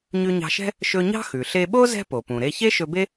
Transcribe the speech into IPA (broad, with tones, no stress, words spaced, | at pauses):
ɲʉ˧ɲɑ̤˧ʃɛ̤˥ | ʃɵ˧ɲɑ̤˥ xʉ˩ɬe˧ɓo˥ zɛ̤˥ po˩pũ˩ɾe˧ çe˥ʃɵ˧be˥